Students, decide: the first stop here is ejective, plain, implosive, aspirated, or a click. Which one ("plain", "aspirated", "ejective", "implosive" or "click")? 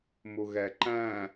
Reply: click